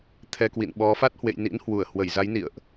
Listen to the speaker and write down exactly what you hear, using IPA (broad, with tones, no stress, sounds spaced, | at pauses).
t̪ʰ ɛ˧ k w ḭ˧˨ n ɓ ɔ˨˦ f a˦˥ t̚ h w ḛ˧˨ j n ḭ˧˥ n h w u˧˩ ə̯ h w ə˧˩ j z a˨˦ j n ḭ˧˨ ə̯ ʔ